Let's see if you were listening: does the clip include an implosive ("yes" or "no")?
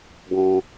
no